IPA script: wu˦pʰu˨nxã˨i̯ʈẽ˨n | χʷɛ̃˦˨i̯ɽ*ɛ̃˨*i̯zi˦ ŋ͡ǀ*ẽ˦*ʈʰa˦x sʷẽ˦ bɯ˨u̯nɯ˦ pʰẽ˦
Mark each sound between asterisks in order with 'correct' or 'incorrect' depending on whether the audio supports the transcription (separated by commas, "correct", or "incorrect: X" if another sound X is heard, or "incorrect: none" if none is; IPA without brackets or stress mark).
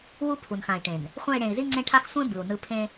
incorrect: ẽ˨, correct